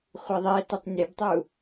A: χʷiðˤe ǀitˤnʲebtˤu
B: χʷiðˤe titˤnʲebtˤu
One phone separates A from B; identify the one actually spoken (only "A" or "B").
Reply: B